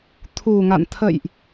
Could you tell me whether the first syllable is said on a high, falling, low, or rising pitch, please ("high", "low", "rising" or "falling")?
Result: low